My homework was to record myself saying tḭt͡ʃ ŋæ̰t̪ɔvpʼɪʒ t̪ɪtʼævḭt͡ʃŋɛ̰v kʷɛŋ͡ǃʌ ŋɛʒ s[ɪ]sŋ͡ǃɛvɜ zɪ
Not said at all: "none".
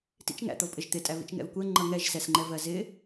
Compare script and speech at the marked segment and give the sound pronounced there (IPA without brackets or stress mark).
ɛ